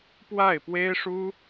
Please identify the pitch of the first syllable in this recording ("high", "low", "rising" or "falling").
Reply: falling